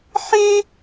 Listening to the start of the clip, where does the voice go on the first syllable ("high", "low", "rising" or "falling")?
high